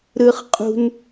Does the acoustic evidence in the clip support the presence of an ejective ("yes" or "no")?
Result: yes